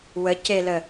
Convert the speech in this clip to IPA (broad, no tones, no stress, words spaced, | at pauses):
wəcelə